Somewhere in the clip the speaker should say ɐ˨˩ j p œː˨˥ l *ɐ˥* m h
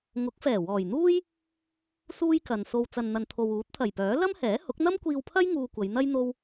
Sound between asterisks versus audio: correct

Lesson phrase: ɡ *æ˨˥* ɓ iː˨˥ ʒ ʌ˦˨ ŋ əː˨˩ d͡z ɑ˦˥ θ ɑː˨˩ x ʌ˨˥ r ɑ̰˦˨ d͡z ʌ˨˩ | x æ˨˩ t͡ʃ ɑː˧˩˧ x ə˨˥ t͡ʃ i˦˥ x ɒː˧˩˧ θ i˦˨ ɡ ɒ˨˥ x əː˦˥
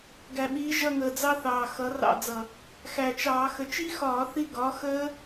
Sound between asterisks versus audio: incorrect: æ˨˩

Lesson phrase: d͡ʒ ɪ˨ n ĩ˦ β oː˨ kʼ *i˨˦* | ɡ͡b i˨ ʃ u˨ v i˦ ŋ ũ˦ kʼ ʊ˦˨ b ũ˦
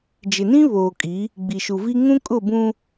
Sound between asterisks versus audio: correct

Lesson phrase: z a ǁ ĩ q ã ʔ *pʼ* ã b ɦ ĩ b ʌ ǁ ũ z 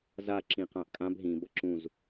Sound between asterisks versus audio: incorrect: kʼ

